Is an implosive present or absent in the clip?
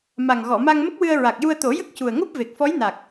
absent